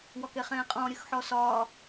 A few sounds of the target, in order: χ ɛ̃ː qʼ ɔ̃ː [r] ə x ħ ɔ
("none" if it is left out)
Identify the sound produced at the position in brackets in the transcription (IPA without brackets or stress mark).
ɾʲ